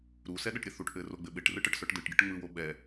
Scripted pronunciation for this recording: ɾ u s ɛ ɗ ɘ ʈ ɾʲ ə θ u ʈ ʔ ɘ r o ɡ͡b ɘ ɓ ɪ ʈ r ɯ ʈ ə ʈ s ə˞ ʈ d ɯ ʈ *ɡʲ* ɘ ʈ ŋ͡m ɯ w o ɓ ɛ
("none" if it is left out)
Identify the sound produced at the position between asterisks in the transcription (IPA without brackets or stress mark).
ɡʲ